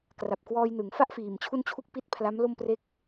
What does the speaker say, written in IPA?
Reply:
kra˨˩p̚kwɔː˧jnɯ˩˦ŋ fa˥˩ʔfiː˨˩m t͡ɕʰu˥˩nt͡ɕʰu˥˩k̚pi˥˩t̚ pʰla˦˥mlo˥˩m pre˥˩k̚

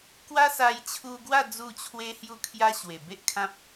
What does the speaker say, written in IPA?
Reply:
kwa˦sa˧j t͡ɕʰu˧ɡwa˥˧ d͡zu˥˧t͡ɕʰwe˦hju˥˧kʰja˦ ɕwe˨˩be˦ʔkʰã˦p̚

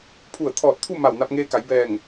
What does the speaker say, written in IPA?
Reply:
pʰu˧˩ə̯t̪ʰɔː˧˩t̚t̪ʰu˥˨ ma˧˩wna˧p̚ŋeː˧ka˩˧j bɛː˧˩ŋ

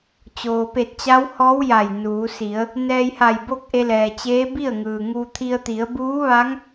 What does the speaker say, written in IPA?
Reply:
t͡ɕoː˩pe˧˩t̚t͡ɕa˧˥whɔː˧˥w ja˧˩jnuː˩˧ si˩˧ə̯ | nɛː˧jha˧˩j bo˥˨k̚ʔe˧lɛː˩t͡ɕeː˧˥ bi˥˨ə̯ŋɯː˩ŋuː˧ t̪ʰi˧ə̯t̪i˩˧ə̯ buː˧˥ʋaː˧˥ŋ

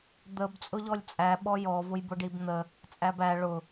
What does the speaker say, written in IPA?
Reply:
d̪əb t͡sʼʊʎɔlʲt͡sʼæ ɓɔjɔ vʊjbʊɖibn̪ə | t͡sʼæbæ ɭʊ

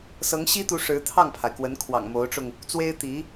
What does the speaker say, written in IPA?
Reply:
sɤ˧˥ŋɕi˥t̪u˧˥ ʂɻ̩˧˥t̪ʰɑ˥˩ŋpʰa˩ɪ̯kwə˧˥n kʰwɑ̰˨˩ŋmo˧˥ʊ̯ʈ͡ʂʊ˧ŋ | t͡swe˥ɪ̯ t̪i˧˥

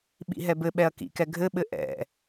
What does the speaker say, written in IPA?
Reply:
ɓḭɦɛbɘɓɛɐ̯ kḭkɛ ɡʱɘɓɘ ʔɛ̰

